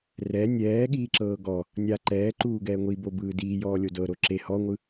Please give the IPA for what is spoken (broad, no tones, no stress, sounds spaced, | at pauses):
r ɛ nʲ ɛː ɠ iː ǁ ɤː ɡ ɔ | nʲ a ǃ ɛː ǃ uː ɡ ɛː ŋʷ i b o b ɯː d iː j ɔː lʲ o d ɤ ɾ o ǁ e h ɔ ŋʷ ɯ